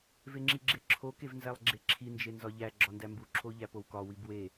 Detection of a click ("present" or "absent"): present